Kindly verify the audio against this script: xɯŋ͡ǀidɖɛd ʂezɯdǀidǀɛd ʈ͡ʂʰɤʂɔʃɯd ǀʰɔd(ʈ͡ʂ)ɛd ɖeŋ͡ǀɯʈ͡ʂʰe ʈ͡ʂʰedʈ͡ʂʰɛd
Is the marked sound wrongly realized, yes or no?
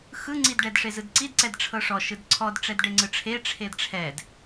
no